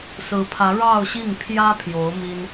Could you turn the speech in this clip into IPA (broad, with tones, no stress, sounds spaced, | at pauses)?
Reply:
s ɹ̩˧˥ pʰ ä˧˥ ɻ ɑ˥˧ ʊ̯ ɕ i˥˩ ŋ pʰ j ä˥ pʰ j o˧˥ ʊ̯ m i˥ n